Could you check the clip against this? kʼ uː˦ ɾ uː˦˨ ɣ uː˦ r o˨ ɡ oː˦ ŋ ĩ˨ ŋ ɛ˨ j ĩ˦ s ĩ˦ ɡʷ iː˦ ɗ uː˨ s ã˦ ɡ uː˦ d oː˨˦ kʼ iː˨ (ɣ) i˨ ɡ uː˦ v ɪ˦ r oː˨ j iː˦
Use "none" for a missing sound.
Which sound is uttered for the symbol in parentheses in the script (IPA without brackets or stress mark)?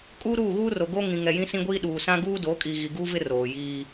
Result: ɣ